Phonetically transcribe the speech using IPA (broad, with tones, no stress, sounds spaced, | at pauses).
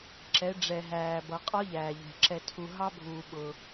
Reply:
ǁ ɛ˩˧ ɖ͡ʐ ɛ˩ ɦ æː˩ b ʌ˩˧ qʼ ɒ˥ ʎ æː˩ ʎ ɛ̤˩ ǁ ɛ˩ tʰ u˩ ɦ ɑ˥ bʱ uː˩ ɓ ʊ˩